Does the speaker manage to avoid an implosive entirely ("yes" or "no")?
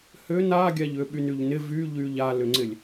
no